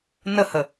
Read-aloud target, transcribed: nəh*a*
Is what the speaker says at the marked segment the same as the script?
no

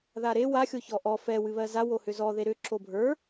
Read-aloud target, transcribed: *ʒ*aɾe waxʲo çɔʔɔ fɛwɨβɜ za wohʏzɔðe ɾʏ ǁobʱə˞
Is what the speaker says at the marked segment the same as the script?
no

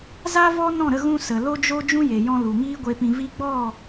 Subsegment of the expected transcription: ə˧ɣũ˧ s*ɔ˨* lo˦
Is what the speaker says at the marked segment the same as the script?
no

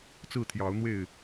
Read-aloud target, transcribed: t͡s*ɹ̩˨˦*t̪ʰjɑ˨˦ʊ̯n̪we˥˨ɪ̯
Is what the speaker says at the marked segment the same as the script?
no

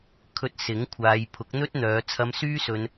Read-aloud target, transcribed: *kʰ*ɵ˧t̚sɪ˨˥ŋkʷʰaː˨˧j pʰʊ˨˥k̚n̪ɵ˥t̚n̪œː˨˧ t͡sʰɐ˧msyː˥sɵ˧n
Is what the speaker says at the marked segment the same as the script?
yes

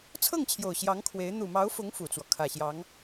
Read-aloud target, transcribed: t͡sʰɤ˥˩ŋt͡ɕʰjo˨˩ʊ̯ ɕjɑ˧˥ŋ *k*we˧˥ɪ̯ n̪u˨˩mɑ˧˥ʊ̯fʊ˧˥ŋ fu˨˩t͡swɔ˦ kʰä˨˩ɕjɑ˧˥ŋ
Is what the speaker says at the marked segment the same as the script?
no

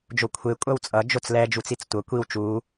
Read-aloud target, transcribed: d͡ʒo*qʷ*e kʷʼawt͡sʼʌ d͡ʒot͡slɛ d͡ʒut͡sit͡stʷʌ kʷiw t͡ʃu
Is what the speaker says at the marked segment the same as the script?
no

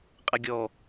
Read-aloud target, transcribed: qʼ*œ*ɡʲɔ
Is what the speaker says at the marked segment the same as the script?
no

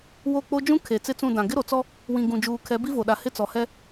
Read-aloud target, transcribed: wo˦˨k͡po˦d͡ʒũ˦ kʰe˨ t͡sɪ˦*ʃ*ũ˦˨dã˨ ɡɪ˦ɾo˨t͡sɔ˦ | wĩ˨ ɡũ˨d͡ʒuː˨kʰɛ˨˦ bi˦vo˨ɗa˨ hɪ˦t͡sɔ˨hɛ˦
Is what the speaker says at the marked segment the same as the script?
no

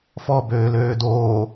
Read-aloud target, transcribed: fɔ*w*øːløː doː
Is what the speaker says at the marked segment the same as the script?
no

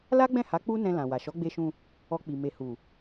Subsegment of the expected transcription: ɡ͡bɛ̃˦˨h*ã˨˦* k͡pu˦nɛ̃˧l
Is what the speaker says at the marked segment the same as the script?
no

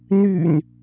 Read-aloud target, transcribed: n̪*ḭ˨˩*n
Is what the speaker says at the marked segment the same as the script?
no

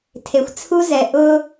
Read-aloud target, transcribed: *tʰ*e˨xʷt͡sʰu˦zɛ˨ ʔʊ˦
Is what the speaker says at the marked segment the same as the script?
yes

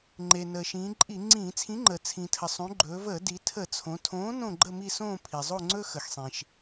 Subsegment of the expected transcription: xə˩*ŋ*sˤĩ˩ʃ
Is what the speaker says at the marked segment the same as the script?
no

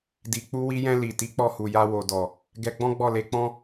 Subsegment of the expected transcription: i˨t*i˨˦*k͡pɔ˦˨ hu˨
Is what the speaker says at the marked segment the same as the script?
yes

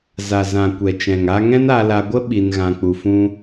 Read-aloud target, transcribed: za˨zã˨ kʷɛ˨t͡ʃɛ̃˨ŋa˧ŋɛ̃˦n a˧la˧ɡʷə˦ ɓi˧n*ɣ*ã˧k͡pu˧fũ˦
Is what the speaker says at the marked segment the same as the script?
yes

